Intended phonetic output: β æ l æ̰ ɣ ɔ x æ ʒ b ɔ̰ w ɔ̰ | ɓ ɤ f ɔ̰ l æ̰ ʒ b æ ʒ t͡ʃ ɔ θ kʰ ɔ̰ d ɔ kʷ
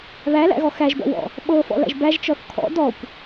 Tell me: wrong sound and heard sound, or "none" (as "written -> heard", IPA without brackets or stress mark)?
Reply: none